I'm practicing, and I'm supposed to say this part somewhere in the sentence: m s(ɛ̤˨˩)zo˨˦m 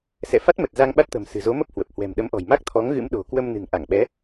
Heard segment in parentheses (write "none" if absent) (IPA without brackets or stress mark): ɨ̤˨˩